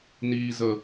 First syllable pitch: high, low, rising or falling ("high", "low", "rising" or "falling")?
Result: low